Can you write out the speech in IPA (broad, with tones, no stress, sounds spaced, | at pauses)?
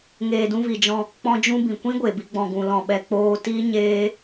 ŋ eː˨ d ũ˧ v i˨ d͡ʒ ɔ̃˧ | k͡p ɔ̃˧ d͡ʒ ũ˧ b ĩ˨ kʷ ĩ˦ ɡʷ e˨ b i˧ ɡ͡b ɔ̃˨ ɡ ũ˨ l ɔ̃˨ ɓ ɛ˨ k͡p oː˧ t i˦ ɲ eː˦